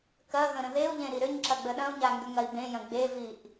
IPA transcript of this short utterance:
kɐ ɣə̃ɾə̃ðeu̯ʎẽ ɾiɾʏɲǁɐ ɡ͡bəɗɐ̃u̯ɲa ŋɡʏŋɐi̯bẽjɐ̃ ɡ͡beviʔ

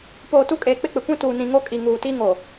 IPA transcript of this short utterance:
poː˨tu˦kʼeː˨ k͡pɪ˦k͡pɪ˨kʷĩ˦ tuː˨nĩ˨ŋo˦kʼi˨ ŋuː˨ti˦ŋo˨

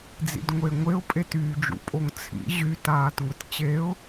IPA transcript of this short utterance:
d͡zḭdŋʷeŋʷeʊ̯ pʼetyːd͡ʒṵ pʼoŋt͡sʰḭ ʑy taːtŋʷett͡ɕeʊ̯

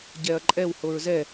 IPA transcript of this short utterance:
ɟɛɐ̯ǃʼɛw hoɹzɛ

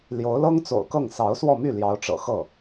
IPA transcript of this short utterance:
ljo˧˥ʊ̯lɤ˥ŋt͡so̰˨˩ʊ̯kɤ˥˩ŋ sɑ˧˥ʊ̯swɔ˥˧my˥˩ ljɑ˧˥ʊ̯ʈ͡ʂɤ̰˨˩xɤ˥˩

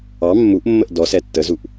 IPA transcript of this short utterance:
ɑ mːuʔmːəʔ dɔ sɛtːəzuʔ

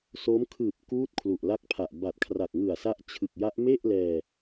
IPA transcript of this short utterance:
so˦˥m kʰɯː˨˩p̚ kuː˦˥t̚ kʰlu˨˩ʔla˦˥k̚pʰa˨˩ʔ ba˨˩t̚kʰra˨˩k̚ŋɯ˨˩a̯ sa˦˥ʔt͡ɕʰɯ˨˩k̚ja˦˥ʔ me˥˩ʔlɛː˧

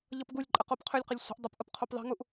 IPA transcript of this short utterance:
ʎʌpɡulʲǃʼə qopqʰølʲqəlʲ sʷə̤ʔ dˤəpʔəp qʰopðˤi̤ŋuʔ

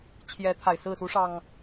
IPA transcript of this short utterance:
t͡ɕʰjɛ˨˦ t̪ʰa˨˩ɪ̯sɹ̩˥˨ su˨˦ ʂɑ˨˩ŋ

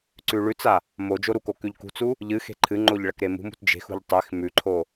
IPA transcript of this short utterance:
ǀʉɭʉt͡sa | mo d͡ʒoɾuko kʉʎkṳt͡su | ʎɨ xe̤ǃʰɨŋ͡ǃoʎ ɭɐkɾemṳmṳt d͡ʒe̤xṳʎ tˤex mʉǃʰo

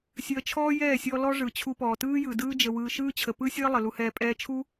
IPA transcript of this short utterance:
sʲəː˧t͡ʃʰɔː˦jɛː˦˨sʲɔ˧ lɔ˦ʐɯ˨t͡ɕʰu˧pɔː˨ tɯː˦jɯ˨dɯː˦ d͡ʒə˧wɯː˧ ʃɯː˦t͡ɕʰə˨ pɯ˦sʲəː˦ lˠə˨lu˧hɛː˧ pʼɛː˧t͡ʃʰu˦

